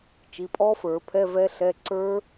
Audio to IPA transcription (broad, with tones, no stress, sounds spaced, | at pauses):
t͡ʃ i˩˧˩ pʼ ɔ˦˥ f ə˞˨˩˦ pʰ ɛ˧˥˧ v ɛ˦˥ ɬ ɛ˧˥˧ ǀ ə˞˦˥